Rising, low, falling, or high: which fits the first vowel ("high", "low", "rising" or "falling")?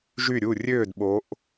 falling